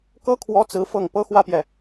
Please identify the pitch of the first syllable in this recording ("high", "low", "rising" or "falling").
high